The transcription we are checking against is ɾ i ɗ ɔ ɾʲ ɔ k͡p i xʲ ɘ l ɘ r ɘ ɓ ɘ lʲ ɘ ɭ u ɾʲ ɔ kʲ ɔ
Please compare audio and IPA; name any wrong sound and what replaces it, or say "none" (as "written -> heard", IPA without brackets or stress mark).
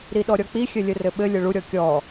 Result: l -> lʲ